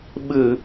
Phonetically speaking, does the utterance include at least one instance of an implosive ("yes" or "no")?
yes